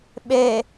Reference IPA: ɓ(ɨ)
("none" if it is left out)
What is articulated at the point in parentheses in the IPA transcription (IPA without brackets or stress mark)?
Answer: e